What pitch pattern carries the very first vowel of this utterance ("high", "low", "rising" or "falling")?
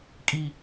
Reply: low